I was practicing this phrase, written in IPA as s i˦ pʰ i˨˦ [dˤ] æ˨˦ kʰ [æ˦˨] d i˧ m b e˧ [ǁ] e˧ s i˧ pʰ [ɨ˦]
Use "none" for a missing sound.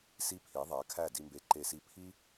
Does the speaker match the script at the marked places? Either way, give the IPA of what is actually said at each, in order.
ðˤ, æ˦˨, ǃ, i˦

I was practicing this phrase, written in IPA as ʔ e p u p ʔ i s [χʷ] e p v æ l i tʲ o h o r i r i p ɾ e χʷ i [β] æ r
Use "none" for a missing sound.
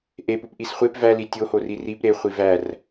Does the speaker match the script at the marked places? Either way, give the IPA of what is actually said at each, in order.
χʷ, v

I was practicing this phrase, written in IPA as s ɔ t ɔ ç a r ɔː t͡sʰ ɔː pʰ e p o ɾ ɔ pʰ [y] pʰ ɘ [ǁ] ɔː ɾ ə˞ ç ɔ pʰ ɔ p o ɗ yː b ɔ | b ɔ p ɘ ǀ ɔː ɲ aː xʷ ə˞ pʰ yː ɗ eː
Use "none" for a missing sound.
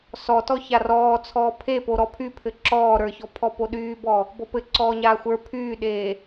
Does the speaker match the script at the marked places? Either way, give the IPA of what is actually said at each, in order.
y, ǁ

